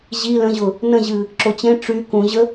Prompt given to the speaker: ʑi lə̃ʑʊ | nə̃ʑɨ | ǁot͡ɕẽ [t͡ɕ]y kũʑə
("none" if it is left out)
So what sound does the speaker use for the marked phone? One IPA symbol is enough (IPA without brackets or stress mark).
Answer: ʈ͡ʂ